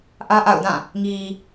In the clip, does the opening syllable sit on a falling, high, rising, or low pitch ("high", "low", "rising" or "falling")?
high